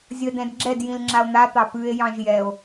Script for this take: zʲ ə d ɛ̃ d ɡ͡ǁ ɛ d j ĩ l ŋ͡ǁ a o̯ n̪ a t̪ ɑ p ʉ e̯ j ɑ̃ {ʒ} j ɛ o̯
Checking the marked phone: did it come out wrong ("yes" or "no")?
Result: no